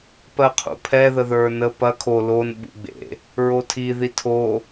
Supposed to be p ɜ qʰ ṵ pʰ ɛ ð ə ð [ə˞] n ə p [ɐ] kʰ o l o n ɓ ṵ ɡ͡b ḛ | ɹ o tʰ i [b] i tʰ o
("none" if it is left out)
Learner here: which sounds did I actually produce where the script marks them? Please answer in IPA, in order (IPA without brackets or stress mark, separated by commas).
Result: ə˞, ɐ, ð